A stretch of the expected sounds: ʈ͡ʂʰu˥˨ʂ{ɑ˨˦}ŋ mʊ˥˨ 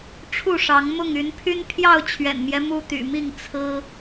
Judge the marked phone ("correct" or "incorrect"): correct